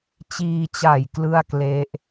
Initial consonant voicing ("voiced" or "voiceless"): voiceless